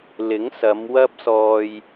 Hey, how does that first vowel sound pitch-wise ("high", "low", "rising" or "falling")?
rising